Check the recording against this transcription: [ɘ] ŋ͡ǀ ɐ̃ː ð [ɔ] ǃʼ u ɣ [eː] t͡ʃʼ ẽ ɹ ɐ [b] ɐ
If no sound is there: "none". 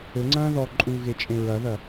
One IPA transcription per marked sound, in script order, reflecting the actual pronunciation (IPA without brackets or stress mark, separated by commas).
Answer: ɘ, ɔ, e, ð